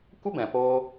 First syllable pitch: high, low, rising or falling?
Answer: high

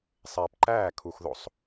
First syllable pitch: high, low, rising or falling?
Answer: low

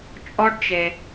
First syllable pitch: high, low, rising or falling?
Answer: high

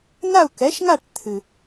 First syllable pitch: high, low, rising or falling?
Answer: falling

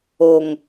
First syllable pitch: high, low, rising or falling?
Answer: low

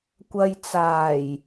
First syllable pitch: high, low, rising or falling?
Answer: low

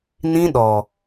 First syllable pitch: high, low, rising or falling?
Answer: high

